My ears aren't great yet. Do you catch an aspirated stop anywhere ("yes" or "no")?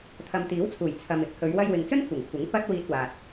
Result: yes